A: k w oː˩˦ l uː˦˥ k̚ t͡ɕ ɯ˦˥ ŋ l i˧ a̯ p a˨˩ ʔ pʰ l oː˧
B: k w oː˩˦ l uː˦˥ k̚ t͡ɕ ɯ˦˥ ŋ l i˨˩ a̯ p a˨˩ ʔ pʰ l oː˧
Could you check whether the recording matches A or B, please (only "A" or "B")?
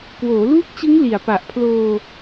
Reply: B